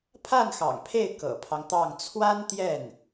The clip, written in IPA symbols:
pʰ a˥˩ n x ɑ̰˨˩ ŋ pʰ e˥˩ ɪ̯ k ɤ̰˨˩ pʰ ɑ˦ ŋ t̪ ɑ˥˩ ŋ t͡sʰ w a˥ n t̪ j ɛ˥˩ n

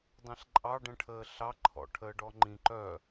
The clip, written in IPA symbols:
dˤ ẽ ɬ ǃʼ ɑ ɖ ə̃ ʈʰ əː ɬ ɑ ǃʰ ɔ̰ ʈʰ əː ɖ ɔ ŋ͡ǃ ĩ ǃ œ

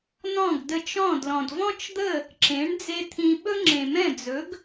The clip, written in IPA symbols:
n ɔ̃˥˩ ɡ d ə˧ t͡ʃ ɔ̃˥˩ d l ɔ̃˩ d v ɔ̃˥ t͡ʃ d̪ ə˥˩ | ǁ ẽ˩˥ ɳ d͡z e˥ t̪ʰ ĩ˧ ɓ ɵ˥ ŋ͡ǁ ẽ˩ m ɛ̃˥˩ d͡z ɵ˩˥ ɡ

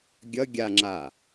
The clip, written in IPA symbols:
ɡʲ ʌ ɡʲ a ŋ͡ǁ a

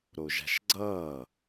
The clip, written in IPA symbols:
ɾ o ʒ a̤ ʃ ɡ͡ǀ ʌː

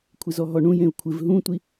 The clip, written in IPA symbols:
kʷʰ ɪ z ɔ ɦ ɔ ɳ ũ j ẽ u̯ kʷʰ ɪ v ɦ ũ tʷ i

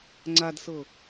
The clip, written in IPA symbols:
ŋ͡ǀ a d s ɤ

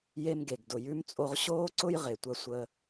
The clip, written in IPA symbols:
j e˧ m ɡ e˩ ɡ d ʊ˩ j ʉ˧ m t͡sʼ o˧ ʁ ɕ oː˥ ǀ ʊ˥ j ʁ e˩ tʷ ɐ˧ sʷ əː˧

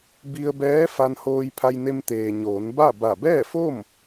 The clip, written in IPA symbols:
b i˧ ə̯ b ɛː˧˥ f a˧ n h oː˧ j pʰ a˧ j n e˧ m t̪ eː˩ ɲ oː˩˧ n b a˥˨ b a˧˩ b ɛː˥˨ f o˥˨ m

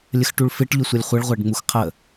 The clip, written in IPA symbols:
lʲ ə x ʈ u ɭ f ɪ ʈ ʎ ʊ sʷ ʌ lʲ χʷ ə ɭ ʁʷ æ ɖ ŋ͡m u x qʰ ə

